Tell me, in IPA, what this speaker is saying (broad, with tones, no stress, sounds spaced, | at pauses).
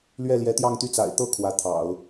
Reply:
l ɥ ɛ˥˩ l j ɛ˧˥ t̪ j ɑ˥˧ ŋ t̪ y˥˩ t͡s a̰˨˩ ɪ̯ t̪ ɤ˥˩ kʰ w ä˧˥ t̪ʰ ɑ̰˨˩˦ ʊ̯